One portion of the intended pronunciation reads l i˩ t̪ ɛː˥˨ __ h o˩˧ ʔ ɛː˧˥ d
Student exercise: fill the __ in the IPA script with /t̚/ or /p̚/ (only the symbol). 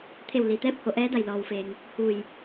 p̚